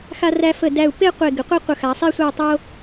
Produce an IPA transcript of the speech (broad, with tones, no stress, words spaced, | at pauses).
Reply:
xa˧ræ˧ fə˧˩dæ˧˩u̯ pe˥˧qʷe˧˩ ɡə˩˧qʷe˥ qʷə˧˩xa˩˧sˤi˥˧ sʷæ˥˧tˤo˥